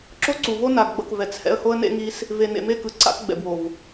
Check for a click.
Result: present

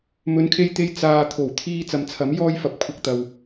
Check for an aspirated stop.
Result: present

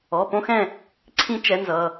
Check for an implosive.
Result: absent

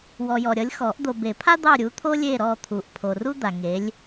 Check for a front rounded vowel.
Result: absent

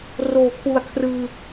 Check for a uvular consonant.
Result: absent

